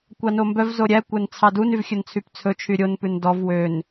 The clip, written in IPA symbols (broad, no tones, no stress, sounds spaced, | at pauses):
kʷ ɑ n o m b œ v z o ɾʲ æ kʷ æ n t͡sʰ ɑ d u n y v xʲ ɵ n t͡sʰ y p t͡sʰ ɵ t͡ʃʰ y ɾʲ o n p ʉ n d ɔ v w ø n